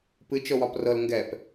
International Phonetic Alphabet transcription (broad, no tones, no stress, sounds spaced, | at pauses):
p ɨ t͡ʃ ɤ w ɒ p r ɤ l ŋ ɡ ɛ p